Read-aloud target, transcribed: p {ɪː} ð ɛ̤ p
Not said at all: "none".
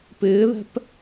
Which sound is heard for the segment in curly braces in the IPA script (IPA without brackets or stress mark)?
ɪː